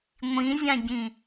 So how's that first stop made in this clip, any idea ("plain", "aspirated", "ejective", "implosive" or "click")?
plain